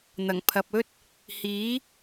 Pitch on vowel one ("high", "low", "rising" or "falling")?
low